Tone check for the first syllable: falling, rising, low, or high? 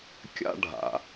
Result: high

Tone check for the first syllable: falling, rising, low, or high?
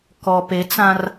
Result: low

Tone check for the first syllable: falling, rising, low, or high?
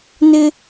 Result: high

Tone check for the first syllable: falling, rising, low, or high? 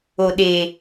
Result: low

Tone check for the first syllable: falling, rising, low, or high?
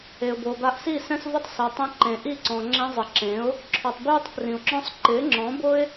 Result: low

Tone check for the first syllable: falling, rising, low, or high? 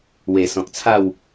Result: low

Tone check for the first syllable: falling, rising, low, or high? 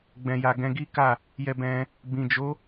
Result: low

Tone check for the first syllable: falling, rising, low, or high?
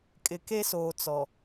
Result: low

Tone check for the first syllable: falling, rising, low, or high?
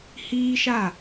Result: high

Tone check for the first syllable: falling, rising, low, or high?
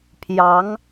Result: rising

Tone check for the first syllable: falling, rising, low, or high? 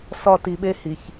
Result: falling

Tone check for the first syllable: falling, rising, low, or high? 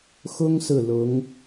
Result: high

